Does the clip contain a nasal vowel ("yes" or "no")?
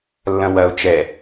yes